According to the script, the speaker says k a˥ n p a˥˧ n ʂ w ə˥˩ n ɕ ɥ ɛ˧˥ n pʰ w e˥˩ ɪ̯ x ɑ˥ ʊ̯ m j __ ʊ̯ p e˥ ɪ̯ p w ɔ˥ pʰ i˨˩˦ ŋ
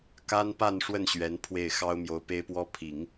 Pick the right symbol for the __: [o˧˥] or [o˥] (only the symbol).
o˧˥